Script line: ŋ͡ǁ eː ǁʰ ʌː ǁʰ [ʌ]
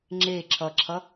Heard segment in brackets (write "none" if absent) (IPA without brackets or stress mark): ʌ